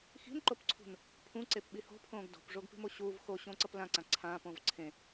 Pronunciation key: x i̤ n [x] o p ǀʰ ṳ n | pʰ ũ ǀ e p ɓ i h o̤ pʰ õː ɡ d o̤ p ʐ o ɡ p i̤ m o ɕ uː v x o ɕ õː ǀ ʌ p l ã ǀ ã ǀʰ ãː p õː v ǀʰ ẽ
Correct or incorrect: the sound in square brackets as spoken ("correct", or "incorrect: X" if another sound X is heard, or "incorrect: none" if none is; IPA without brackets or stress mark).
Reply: incorrect: ǃ